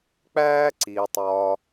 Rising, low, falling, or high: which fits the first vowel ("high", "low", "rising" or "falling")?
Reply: high